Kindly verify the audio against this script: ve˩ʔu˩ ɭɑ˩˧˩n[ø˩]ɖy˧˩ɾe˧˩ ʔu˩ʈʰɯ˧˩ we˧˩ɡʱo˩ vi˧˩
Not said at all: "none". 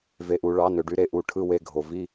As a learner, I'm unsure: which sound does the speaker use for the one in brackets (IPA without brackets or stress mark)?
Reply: ø˩